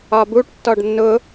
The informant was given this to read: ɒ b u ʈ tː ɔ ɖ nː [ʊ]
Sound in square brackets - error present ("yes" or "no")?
no